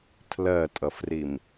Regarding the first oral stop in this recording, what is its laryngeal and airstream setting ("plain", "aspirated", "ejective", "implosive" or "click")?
aspirated